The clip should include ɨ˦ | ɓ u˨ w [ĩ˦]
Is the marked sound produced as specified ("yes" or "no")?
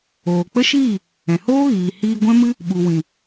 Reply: no